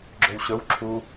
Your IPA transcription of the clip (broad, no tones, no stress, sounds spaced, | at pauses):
ɡ͡ǁ ø w ɕ ɵ w ǁʰ u